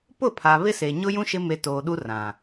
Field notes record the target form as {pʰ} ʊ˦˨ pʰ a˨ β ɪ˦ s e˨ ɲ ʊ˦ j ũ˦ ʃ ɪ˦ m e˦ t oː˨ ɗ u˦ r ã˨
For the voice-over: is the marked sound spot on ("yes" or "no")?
no